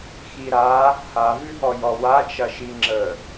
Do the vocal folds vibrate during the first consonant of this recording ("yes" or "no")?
no